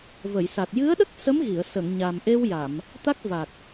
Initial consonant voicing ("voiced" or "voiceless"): voiced